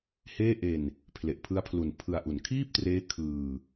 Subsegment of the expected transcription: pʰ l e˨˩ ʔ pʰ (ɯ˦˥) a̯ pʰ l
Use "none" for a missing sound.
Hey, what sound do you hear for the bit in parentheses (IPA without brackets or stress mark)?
ɯ˦˥